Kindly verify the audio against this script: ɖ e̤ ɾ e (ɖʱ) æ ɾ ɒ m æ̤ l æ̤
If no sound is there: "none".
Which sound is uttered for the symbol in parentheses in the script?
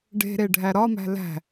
ɖʱ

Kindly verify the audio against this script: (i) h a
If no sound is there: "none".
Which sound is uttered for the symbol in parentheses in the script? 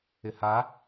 ɪ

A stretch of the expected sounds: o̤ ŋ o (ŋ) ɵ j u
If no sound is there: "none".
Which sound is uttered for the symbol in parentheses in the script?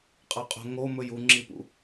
m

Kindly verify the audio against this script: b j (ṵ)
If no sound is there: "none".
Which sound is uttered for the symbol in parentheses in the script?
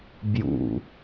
ṵ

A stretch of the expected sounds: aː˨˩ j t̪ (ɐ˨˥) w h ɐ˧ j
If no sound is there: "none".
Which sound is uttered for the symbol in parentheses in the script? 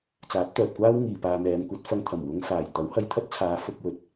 ɐ˨˥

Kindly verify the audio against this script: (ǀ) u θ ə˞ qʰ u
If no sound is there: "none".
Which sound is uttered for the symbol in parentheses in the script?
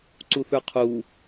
ǀ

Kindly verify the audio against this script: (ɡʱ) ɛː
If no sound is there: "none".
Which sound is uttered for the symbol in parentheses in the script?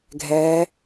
ɡʱ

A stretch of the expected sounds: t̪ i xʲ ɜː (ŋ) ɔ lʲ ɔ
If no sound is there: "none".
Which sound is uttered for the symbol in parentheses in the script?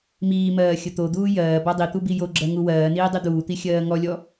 ŋ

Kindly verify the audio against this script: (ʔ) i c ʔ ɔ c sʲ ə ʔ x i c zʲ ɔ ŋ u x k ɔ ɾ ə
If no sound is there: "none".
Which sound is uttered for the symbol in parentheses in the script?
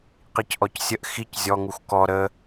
q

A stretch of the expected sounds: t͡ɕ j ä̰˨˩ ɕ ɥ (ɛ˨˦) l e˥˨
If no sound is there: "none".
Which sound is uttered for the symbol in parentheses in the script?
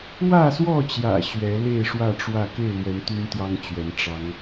ɛ˨˦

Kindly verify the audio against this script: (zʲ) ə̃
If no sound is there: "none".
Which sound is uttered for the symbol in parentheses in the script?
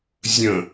zʲ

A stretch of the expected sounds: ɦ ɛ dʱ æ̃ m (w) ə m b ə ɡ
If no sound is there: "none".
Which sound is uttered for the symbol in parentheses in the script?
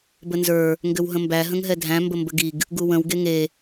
b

